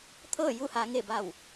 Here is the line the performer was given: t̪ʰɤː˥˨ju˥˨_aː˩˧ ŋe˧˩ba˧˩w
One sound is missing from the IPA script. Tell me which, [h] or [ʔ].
h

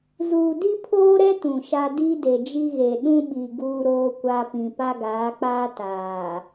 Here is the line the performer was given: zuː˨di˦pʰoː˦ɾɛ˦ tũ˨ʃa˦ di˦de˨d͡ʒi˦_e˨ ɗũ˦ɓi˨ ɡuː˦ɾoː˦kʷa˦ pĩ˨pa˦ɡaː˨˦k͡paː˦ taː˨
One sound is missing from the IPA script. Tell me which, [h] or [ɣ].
ɣ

